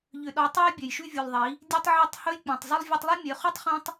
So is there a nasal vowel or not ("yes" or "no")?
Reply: yes